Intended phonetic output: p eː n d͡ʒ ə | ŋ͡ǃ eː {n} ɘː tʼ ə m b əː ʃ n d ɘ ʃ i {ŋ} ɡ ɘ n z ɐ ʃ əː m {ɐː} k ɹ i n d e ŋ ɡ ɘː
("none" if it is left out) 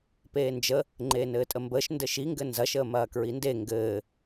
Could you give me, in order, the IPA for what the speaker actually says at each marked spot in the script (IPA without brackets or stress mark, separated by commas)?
n, ŋ, ɐː